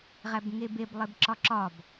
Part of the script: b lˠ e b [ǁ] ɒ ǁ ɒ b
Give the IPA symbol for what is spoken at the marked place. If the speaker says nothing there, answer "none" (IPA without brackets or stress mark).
ǁ